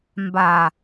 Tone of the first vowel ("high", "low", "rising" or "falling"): low